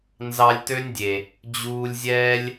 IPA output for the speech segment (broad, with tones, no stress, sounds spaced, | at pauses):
n z ɑ˧ lʲ t ø˦ nʲ dʲ e˨ | d͡ʑ uː˧ lʲ zʲ ɛː˦ lʲ